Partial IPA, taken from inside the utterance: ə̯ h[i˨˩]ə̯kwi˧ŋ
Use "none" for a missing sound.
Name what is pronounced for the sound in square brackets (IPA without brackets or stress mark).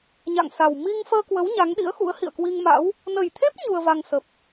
ḭ˧˨